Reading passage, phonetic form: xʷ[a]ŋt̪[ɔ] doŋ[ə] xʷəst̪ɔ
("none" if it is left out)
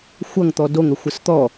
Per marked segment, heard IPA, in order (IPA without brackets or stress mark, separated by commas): ʌ, ɔ, ə